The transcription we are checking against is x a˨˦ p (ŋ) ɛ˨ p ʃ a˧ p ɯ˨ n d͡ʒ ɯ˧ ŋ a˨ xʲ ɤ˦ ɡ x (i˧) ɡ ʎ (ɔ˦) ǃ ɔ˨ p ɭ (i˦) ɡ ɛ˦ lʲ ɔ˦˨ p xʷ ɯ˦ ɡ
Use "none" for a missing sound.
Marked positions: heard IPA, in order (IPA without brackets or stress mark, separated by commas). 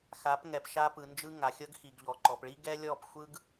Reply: ŋ, i˨, ɔ˨, i˦